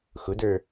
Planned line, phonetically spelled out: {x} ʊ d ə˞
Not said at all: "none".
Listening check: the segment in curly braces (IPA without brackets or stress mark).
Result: x